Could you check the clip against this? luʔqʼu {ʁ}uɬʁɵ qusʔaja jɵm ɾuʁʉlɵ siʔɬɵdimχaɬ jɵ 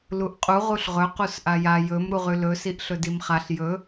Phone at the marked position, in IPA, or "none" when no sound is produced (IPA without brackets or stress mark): ʁ